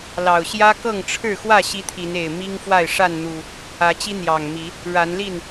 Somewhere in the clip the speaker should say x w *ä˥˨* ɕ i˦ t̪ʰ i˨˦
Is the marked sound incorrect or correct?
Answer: correct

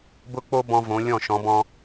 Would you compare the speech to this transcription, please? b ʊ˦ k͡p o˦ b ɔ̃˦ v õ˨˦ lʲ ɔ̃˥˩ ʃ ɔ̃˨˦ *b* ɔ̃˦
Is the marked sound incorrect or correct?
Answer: correct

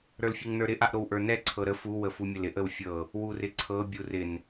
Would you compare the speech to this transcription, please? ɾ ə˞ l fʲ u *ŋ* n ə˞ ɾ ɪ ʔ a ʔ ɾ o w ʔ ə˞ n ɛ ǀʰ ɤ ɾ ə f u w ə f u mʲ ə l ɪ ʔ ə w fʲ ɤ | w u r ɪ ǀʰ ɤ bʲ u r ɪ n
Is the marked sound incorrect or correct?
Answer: correct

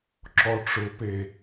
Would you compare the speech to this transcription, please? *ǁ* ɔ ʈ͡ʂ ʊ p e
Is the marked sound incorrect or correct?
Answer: correct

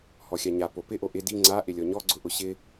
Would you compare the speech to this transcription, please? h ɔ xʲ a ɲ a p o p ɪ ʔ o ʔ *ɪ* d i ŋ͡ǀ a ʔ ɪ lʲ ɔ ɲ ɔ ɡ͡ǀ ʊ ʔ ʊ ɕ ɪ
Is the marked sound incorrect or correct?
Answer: correct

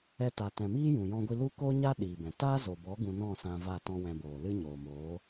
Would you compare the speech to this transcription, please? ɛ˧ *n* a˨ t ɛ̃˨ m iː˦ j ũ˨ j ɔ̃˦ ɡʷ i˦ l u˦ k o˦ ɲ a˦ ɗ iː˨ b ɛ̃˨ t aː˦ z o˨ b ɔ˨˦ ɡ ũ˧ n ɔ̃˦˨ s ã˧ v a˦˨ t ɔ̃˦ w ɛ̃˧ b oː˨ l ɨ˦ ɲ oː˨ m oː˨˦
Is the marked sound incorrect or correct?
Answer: incorrect: t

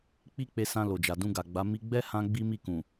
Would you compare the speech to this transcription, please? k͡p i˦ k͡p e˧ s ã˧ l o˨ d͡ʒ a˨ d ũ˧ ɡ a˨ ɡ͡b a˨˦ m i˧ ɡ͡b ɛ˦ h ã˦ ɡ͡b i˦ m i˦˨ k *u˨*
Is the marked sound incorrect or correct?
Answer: incorrect: ũ˨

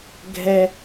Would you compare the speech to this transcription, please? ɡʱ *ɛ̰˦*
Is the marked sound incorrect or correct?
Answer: incorrect: ɛ˦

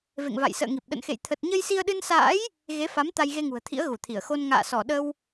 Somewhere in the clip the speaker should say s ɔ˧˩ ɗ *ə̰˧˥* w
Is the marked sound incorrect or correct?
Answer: incorrect: ə˧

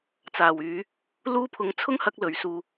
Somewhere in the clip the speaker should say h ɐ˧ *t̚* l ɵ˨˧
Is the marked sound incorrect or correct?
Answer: incorrect: k̚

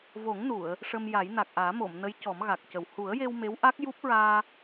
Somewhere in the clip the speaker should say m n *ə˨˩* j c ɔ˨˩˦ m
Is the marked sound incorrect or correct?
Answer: incorrect: ə˧˥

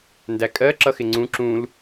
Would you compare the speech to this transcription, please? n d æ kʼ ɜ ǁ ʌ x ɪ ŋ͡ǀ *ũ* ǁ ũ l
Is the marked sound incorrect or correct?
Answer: correct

